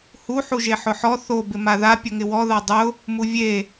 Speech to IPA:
hu ħuʒeħʊħɔ θo bɪmaða pʲʊŋɪwɔða dˤʊ | muvʲe

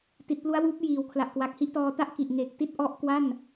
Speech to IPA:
ti˨˩t̚plu˦˥a̯wuː˦˥p̚ jiː˩˦wkʰla˨˩ʔkwa˨˩k̚ hi˦˥ʔtɔː˧ta˥˩ʔ ki˨˩ʔŋe˨˩k̚ ti˥˩t̚ʔɔ˦˥ʔkwa˥˩n

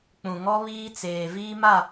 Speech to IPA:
k͡pũ˨ŋɔ˦ βiː˦t͡seː˨ viː˦ma˦˨

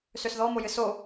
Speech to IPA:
søsðɔmojɨ so

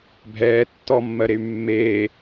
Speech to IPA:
bʱɛː tːɔmːɜɾey̯ mːeː

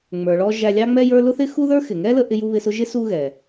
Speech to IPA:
ŋ͡mə˞˩ɭɔ˧ ʒæ˧lʲɑ˥ŋ͡mɛ˥jə˞˥ lʊ˥θɪ˥ xu˥ðə˞˥ xɪ˩ŋɛ˥lə˧ ʔɪ˧ju˧ βɪ˧sʊ˥ ʒɪ˥ su˥ɣɛ˩

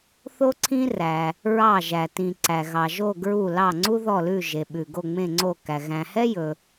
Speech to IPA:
θo˦ǀʰĩ˦ræ˩ | ɹɑ˧˩ʒæ˩ tĩ˩ ǀæ˩ ɣɑ˩ʒo˧˩ ɡɹu˧˩lɑ˧˩ŋ͡ǀu˦ ðɔ˧˩lʉ˧˩ʒe˩ɓʉ˩ ɡo˧˩ŋ͡mẽ˧˩ŋ͡ǀo˧˩kæ˩ ɣæ̃˩hɛ˦jɵ˩

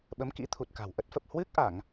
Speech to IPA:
ɓə˨˦mkḭ˧˥t̪ʰu˨˩t̚ka̤˨˩w ʔə˦˥t̚fə˨˩p̚ hwɨ˦˥k̚ʔa˧˩˨ŋ

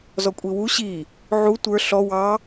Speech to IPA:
zɔkʷʼiwu ɕi | ʕu tʷə˞ ɬɔ wɑ

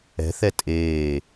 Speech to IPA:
ɛ̤θɛ tʼeː

